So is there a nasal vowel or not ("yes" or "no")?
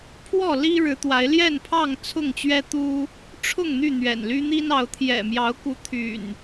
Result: no